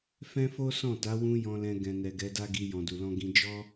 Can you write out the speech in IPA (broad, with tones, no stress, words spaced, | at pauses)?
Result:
fɛ̃˦fo˦sɔ̃˦˨ta˨˦ wũ˦jɔ̃˧lɛ̃˧ ɡɛ̃˨nɛ˨ ɡɛ˨˦da˦ɡi˧ jɔ̃˨du˨lɔ̃˧ɡĩ˧ d͡ʒɔ˦